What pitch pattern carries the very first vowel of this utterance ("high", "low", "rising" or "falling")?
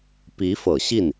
rising